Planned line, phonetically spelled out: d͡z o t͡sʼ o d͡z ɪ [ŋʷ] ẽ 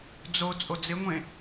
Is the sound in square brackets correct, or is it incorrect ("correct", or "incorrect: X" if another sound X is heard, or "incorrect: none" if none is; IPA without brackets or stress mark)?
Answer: correct